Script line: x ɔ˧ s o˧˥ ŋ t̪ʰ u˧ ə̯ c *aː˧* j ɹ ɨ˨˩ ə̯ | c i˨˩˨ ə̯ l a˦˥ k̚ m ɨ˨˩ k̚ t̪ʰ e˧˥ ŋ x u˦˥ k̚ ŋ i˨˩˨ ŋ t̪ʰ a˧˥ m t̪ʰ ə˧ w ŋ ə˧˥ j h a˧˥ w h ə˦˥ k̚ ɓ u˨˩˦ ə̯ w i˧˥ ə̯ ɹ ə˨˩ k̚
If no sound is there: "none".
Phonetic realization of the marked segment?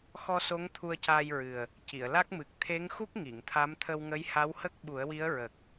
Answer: aː˧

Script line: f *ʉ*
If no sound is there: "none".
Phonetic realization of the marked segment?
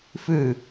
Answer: ʉ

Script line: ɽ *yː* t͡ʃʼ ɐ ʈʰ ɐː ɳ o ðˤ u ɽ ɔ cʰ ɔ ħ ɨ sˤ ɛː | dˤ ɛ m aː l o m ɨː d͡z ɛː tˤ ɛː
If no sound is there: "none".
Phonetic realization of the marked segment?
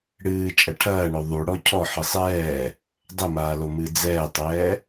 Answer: ɨː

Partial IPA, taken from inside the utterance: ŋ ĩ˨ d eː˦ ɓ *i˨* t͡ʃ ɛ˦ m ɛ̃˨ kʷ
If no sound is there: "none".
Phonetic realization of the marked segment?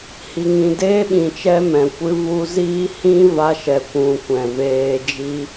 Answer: ĩ˨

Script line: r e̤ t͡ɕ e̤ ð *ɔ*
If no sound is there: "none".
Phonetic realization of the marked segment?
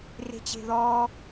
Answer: ɔ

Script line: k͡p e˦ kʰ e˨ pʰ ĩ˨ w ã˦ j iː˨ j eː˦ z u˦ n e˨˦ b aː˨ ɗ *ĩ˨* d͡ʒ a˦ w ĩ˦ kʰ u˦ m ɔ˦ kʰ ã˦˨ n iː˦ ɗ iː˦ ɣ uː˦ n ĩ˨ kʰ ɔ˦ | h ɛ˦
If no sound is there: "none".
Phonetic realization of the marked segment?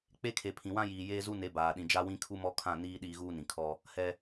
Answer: ĩ˨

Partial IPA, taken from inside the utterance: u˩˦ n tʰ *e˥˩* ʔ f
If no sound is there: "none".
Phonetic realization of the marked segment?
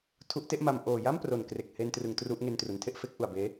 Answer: e˥˩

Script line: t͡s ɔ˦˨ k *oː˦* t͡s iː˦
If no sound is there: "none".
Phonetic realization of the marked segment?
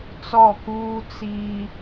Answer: uː˦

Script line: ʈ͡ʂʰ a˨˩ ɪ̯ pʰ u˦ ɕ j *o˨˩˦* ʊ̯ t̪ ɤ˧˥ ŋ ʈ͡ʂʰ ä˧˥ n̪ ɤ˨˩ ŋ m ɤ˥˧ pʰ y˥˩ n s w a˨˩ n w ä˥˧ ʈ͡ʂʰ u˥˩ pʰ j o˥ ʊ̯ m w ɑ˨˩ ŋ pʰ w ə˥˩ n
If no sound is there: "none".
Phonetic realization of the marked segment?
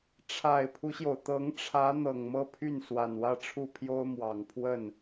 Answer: o˩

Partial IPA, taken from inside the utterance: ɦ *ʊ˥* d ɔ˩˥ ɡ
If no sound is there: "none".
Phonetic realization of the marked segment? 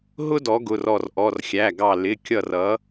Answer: ʊ˥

